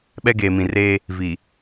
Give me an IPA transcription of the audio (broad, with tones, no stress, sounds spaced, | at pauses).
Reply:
ɓ ɛ˦ ɡ eː˨ m ĩ˨ r eː˦ | v i˨